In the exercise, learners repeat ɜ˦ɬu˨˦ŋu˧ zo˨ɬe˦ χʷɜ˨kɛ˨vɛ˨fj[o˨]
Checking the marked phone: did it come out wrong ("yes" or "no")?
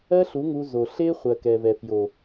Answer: no